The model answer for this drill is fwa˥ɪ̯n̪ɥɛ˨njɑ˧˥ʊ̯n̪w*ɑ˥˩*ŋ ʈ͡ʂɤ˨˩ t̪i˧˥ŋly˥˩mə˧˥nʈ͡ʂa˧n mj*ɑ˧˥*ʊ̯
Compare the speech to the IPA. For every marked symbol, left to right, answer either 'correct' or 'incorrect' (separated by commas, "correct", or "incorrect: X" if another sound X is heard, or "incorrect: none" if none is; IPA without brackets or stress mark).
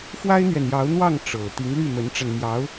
correct, correct